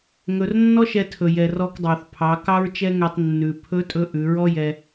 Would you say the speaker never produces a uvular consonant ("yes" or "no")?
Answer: yes